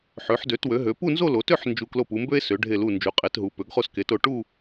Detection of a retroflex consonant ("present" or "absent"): present